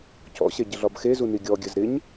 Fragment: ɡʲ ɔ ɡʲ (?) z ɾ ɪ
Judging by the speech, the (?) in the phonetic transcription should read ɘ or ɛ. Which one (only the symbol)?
ɘ